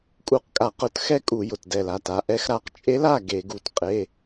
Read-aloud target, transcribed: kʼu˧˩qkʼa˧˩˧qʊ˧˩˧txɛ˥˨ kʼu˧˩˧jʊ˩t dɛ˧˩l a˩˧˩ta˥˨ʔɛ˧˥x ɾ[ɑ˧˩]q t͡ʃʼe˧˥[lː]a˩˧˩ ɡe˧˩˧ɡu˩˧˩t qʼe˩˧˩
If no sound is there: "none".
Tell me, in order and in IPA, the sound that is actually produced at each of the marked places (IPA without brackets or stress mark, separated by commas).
a˧˩, l